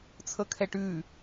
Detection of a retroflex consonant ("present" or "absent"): present